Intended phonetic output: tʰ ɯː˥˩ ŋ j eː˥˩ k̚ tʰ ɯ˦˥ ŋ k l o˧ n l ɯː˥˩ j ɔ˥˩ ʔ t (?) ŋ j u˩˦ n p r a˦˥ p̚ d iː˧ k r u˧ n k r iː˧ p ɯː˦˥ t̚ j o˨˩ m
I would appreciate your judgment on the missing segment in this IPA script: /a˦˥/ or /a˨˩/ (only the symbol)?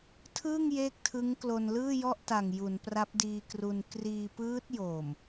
a˨˩